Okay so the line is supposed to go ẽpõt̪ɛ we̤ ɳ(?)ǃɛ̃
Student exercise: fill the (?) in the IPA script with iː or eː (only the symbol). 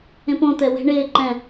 eː